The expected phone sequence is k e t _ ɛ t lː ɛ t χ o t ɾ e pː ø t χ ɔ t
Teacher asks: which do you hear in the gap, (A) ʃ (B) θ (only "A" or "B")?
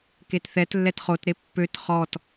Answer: B